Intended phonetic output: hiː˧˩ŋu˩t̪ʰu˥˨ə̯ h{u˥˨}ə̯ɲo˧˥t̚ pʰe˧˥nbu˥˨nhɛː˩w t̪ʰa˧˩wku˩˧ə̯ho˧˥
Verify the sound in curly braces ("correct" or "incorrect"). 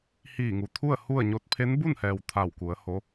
correct